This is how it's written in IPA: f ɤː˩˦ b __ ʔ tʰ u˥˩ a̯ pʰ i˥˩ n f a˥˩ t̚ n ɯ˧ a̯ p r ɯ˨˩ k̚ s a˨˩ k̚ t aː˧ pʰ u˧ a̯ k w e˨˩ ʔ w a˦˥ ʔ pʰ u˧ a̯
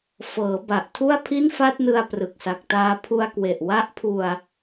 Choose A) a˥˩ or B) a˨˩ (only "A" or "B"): B